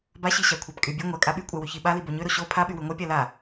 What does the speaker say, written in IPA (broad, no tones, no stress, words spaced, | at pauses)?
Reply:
baɕiɕakʷʰab kʼy bʲø ŋʷa kʼaɓykʷʼa wyçiɓali boɲøɾo ɕo pʰaɓy wyŋʷœpʲa la